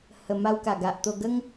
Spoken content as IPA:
h ə˨˩ m a˧ w k a˨˩ ɡ a˨ ʔ t̪ o˧ ɡ ə˦ ŋ

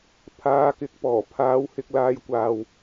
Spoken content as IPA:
pʰ aː˨˧ k ɪ˨˥ k̚ p ɔː˨˩ pʰ aː˨˧ w h ɪ˧ k̚ l aː˧ j kʷ aː˨ w

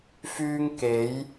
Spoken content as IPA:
f yː˧ ŋ k e˨˧ j

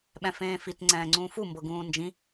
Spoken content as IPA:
ɓ ɛ̃ f ẽː f i t ŋ͡ǀ ɛ̃ː ŋ͡ǀ ũː f u m b ɤ ɡ ũː n d͡ʒ ĩ

